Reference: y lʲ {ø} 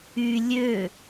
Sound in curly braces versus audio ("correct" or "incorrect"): correct